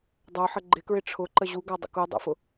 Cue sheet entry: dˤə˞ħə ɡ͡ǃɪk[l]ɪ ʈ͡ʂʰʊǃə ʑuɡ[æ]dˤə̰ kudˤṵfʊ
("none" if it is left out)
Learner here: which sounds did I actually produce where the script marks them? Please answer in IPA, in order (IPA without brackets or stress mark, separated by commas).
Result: ɹ, æ